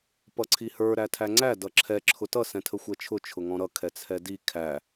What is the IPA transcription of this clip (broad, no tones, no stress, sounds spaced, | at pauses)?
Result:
p ʌ ǀʰ i h ə˞ ɾ æ tʰ æ ŋ͡ǀ æ d ʌ ǁʰ ɛ ǁʰ ʊ t ʌ s ɛ̃ tʰ ə xʷ ɛ t͡ʃʰ ʊ t͡ʃʰ ʊ ŋ ɔ̃ ɾ ʌ kʰ ɛ t͡sʰ ɛ d i kʰ æ